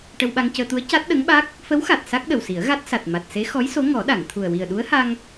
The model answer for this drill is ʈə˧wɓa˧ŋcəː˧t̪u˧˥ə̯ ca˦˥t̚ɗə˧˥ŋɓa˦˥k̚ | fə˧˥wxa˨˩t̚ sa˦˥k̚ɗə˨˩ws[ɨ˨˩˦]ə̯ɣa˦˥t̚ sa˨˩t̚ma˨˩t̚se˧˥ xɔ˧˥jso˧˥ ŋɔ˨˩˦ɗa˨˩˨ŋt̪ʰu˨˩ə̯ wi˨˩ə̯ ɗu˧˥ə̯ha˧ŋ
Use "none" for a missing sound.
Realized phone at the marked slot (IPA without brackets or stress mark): i˨˩˦